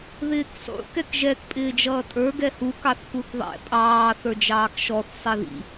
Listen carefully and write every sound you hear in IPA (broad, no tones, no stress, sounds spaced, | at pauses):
ð ɪː k sˤ ṵ k ɛ k ʒ ɛ k pʼ ɪː d͡ʒ ʌː tʼ ə˞ ɡ ɛ h u k ɑ θ k u θ ðˤ ɛ̰ pʼ ɑː θ ə˞ d͡ʒ ɑː k ʃ ɔ θ sˤ i ð ḭ